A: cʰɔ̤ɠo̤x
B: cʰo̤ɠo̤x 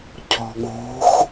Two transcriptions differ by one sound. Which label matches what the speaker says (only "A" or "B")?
A